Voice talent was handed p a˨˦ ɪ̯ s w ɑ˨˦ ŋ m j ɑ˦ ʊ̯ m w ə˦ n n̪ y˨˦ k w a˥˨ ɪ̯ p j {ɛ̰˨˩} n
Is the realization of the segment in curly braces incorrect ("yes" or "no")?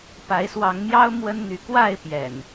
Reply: no